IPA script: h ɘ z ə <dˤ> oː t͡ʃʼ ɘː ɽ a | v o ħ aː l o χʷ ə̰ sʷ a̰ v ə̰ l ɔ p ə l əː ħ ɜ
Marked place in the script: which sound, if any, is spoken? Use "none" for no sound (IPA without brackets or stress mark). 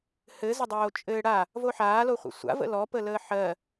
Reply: dˤ